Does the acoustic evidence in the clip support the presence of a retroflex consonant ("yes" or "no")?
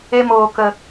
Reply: no